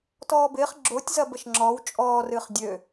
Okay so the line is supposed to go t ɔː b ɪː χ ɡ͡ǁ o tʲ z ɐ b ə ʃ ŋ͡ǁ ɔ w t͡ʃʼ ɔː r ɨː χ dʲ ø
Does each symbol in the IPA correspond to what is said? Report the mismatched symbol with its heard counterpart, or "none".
none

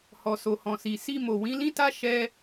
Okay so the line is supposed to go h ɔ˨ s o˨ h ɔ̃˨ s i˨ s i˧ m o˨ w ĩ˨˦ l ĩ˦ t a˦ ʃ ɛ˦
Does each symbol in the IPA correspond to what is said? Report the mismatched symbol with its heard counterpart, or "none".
none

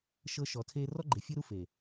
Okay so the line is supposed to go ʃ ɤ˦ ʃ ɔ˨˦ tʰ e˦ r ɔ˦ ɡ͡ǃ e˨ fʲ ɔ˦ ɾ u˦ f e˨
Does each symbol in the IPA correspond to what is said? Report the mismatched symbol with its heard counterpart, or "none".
none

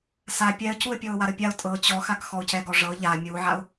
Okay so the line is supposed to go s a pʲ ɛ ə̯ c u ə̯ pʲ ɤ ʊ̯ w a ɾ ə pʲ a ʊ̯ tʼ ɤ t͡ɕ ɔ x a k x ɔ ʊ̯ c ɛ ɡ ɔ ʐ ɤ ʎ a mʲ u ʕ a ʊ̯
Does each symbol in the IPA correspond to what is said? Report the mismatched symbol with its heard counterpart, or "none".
none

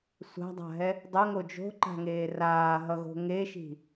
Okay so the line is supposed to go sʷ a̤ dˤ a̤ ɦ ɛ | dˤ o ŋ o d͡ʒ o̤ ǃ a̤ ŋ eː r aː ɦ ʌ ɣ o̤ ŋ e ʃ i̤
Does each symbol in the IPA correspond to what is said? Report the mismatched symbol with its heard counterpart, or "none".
none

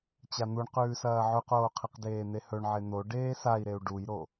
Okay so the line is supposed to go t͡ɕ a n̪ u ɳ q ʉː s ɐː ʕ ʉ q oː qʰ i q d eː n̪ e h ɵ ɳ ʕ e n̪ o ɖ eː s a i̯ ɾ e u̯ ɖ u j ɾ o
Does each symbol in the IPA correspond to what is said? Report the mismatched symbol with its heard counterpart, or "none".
none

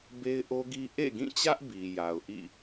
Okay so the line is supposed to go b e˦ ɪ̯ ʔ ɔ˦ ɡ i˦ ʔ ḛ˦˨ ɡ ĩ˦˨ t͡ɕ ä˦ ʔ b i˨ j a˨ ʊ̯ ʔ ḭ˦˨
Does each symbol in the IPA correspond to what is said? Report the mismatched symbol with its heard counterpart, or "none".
ɔ˦ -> o˦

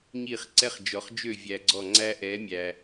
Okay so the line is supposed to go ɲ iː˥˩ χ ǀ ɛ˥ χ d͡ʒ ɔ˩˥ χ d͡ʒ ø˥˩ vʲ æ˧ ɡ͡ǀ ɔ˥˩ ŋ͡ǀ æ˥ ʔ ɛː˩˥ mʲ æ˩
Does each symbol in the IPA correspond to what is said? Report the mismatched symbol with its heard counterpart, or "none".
none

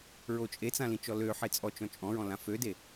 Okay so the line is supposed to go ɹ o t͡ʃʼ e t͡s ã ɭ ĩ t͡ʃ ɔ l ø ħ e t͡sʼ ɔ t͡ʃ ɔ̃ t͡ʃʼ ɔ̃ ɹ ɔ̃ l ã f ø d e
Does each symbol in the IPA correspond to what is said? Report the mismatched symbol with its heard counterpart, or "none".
ɭ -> l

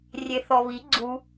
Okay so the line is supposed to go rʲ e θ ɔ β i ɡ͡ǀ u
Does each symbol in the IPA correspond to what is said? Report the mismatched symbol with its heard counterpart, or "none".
none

